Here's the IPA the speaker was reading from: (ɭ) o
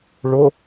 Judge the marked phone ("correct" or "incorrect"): correct